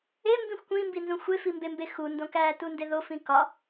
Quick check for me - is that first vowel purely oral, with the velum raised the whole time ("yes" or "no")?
yes